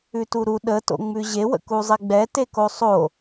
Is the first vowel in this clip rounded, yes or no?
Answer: yes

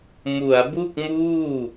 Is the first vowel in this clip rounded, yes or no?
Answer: yes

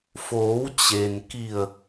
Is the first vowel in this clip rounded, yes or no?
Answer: yes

